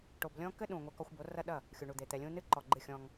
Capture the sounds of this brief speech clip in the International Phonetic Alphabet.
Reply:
ʈ o˨ b lʲ ɔ̃˦ k ɘ˦ ɗ ũ˨ ŋʷ ɛ˦ k ɔ˦ xʷ b o˨˦ r ɐ˦ ɗ ɐ˦˨ | xʲ u˨ ɳ u˨ d̪ e˨ t̪ ɛ˨ lʲ ũ˦ n ɨ˦ ǃ ɔ˨ ɡ͡ǃ ɨ˦˨ xʲ ɔ̃˦ ŋ

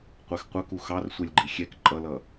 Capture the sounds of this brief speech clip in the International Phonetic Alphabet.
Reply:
qʷ ɛ x qʷ ʌ k u x ɑ r sʷ ɛ lʲ ɡ͡ǃ i xʲ ɛ k ǃʼ ʌ l ʌ

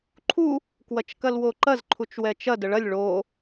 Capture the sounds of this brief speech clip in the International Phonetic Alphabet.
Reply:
ǃʰ u | k w ɐ t͡ʃ k ɐ l w o ǃ ɐ z ǃʰ u t͡ʃ w ɛ t͡ʃ ɐ d ə ɭ ɐ lʲ ɭ o

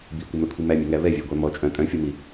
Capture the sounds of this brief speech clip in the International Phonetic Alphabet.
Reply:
b i kʷ ɛ m œ kʷʰ i m æ mʲ ɛ ŋ æ β ɛ vʲ æ ɡʷ æ m ɔ t͡ʃʼ œ̃ tʼ œ̃ fʲ ɔ m i

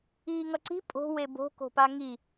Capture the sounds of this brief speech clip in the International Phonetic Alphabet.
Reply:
iː ŋ ʌ ǀ i̤ pʼ o̤ w e b o̤ k o̤ p a ŋ i

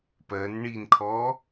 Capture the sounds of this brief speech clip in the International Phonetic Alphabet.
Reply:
p ɜ n ɳ i n kʰ ɔ

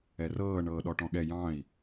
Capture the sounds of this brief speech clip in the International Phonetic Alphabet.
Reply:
ɛ r ɤː ɳ ɤː ɗ ɔ ʈ ɔ̃ ɠ ɛ j ɑ̃ i̯

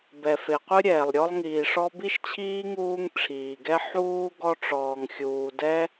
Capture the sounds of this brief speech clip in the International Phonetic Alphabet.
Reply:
b ɛ˩ f e˩ qʷ ɨ˥ ɾʲ ɛː˩ lˠ ɾʲ ɔ˦ lˠ ŋ iː˩ ʂ ɔ˦ b i˥ ʃ t͡ɕʰ iː˥ ŋ uː˦ ŋ ʈ͡ʂʰ iː˩ ɡ ɛ˥ ħ uː˥ ɡ ɔ˥ ʈ͡ʂ ɔː˨ ŋ xʲ uː˨ d ɛ˥

